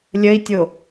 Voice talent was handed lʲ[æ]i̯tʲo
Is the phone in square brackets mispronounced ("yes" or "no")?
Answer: yes